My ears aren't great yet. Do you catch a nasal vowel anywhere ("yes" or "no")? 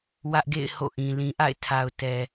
yes